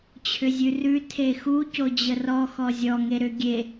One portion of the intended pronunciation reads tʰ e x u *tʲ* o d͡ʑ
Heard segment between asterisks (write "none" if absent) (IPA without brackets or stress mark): c